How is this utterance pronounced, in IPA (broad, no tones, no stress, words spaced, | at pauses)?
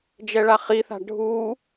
d͡ʒɛɭaχiθa̤ ɖʱu